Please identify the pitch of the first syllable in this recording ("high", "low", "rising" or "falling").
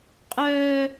high